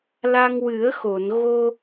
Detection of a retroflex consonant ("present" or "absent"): absent